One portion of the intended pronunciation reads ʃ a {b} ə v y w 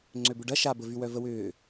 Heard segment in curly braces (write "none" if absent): b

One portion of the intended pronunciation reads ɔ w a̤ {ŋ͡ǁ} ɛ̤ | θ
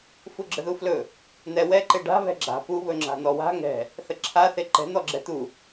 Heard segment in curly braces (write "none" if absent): ŋ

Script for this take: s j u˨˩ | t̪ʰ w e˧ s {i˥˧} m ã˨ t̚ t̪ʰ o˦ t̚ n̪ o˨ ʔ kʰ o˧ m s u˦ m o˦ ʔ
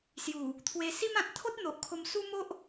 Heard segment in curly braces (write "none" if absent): i˦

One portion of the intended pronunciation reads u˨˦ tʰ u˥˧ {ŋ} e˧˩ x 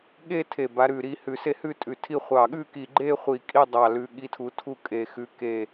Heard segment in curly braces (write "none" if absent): kʼ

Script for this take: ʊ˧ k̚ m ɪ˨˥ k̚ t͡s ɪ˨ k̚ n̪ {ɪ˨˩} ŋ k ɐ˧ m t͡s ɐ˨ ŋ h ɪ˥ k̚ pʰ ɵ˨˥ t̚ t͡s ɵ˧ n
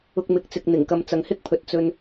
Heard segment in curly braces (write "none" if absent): ɪ˨˩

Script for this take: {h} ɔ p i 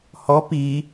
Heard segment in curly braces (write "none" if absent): h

